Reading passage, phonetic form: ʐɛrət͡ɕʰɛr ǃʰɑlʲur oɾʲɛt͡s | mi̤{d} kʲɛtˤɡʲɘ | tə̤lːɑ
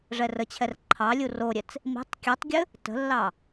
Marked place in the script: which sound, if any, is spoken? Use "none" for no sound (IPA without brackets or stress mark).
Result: tˤ